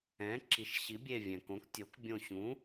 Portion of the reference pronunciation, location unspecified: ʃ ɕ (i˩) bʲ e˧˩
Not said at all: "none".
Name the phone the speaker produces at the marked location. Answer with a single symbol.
i˩˥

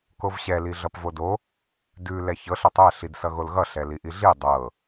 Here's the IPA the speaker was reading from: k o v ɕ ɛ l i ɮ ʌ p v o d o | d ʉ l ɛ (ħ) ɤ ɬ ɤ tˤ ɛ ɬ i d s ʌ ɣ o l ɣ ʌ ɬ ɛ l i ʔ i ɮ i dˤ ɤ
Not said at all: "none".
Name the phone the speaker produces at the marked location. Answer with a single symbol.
ç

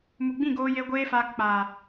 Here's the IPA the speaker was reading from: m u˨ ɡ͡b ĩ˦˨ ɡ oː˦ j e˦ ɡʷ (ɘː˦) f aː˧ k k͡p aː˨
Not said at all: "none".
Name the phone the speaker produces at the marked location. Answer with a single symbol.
eː˦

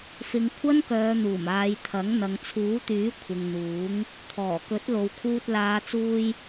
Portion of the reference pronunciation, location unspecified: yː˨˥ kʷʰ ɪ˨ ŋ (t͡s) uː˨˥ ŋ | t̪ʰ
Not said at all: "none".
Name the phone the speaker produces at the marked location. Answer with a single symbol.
n̪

